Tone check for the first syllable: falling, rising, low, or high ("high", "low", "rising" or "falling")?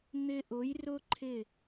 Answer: high